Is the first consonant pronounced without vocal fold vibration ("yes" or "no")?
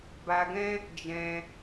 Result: no